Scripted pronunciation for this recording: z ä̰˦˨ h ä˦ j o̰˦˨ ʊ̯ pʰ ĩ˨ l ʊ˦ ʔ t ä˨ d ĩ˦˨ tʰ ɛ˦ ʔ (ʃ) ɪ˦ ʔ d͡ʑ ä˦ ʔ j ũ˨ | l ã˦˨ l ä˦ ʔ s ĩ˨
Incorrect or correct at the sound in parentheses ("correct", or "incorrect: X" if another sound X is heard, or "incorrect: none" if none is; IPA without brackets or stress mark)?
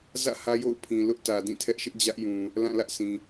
correct